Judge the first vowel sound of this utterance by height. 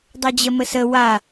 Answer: mid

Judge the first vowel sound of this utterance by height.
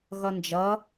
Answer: mid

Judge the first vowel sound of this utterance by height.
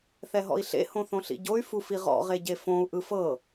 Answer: mid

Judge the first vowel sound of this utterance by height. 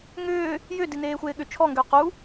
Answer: high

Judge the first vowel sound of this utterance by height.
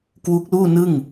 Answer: high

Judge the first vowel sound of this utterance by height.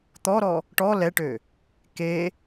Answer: mid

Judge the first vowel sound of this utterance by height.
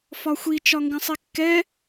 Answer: low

